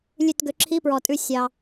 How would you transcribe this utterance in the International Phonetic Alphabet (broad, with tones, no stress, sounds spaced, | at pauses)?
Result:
lʲ ʉ˦˨ t ɡ ø˨˦ ǁʰ i˧˥˧ p ɹ ɔ˨ tʼ ʉ˦˨ sʲ ɑ˨